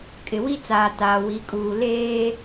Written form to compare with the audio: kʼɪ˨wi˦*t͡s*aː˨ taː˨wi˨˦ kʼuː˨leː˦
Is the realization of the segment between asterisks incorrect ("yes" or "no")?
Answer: no